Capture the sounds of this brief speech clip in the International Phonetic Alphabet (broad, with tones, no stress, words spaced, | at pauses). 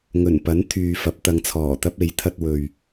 ŋɵ˨˩npɐ˨˥n t̪ʰyː˨fɐ˨˥p̚ t̪ɐ˨˧ŋt͡sʰɔː˨˩ t̪ɐ˥p̚e˨˥j t̪ʰɐ˥t̚ wɵ˨ɥ